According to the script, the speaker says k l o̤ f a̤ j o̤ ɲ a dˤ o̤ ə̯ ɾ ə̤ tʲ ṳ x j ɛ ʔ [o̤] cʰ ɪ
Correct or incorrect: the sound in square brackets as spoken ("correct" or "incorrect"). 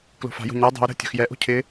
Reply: correct